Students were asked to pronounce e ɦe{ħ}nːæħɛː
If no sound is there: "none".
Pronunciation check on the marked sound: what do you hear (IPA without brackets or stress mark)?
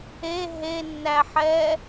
none